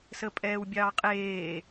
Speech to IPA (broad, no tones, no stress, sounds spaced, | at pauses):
s ə pʼ ɛː w bʲ ɑː qʼ eː